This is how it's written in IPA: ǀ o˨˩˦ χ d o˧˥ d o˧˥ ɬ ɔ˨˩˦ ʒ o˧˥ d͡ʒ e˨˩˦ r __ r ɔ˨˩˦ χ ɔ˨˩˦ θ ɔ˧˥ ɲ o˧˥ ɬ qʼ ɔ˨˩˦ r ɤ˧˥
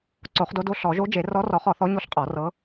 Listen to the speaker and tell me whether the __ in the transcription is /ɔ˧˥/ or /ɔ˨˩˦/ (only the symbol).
ɔ˧˥